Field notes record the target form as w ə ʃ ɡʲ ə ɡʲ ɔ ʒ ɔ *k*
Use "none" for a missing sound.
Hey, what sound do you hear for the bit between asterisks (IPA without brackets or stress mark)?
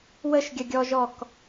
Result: k